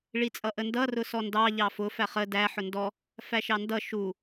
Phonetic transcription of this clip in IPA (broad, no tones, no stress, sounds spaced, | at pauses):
ɭ i t͡sʼ ʌ ʔ ə n d ʌ r ʊ s ɔ n d ɑ ʎ ɑ f ʊ f æ χ ə d æ ħ ʊ n d ɔ | f æ ʃ ɑ n d ʌ ʃ u